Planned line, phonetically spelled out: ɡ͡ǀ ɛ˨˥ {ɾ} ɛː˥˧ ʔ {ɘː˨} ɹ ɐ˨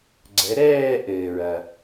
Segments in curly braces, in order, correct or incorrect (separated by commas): correct, correct